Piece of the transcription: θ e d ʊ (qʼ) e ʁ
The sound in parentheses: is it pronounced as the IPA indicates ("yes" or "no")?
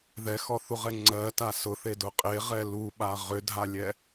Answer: yes